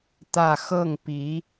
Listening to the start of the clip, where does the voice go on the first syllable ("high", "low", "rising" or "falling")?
falling